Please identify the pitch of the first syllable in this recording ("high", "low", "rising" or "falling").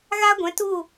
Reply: high